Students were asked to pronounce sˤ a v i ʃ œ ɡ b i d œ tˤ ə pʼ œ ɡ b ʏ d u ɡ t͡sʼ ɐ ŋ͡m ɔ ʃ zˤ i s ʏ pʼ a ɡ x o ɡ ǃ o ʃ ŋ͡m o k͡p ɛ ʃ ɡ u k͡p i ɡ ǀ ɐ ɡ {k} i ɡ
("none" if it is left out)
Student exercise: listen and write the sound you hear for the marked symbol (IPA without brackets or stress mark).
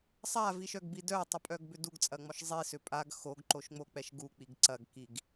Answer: k